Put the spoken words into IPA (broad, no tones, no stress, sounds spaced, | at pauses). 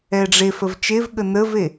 ɛ ɖ͡ʐ e f ə v t͡ʃ e v ɠ ə n ə v e